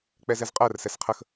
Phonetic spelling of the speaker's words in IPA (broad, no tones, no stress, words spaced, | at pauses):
k͡pɛzɛzqʼɜr sɛsqʰəx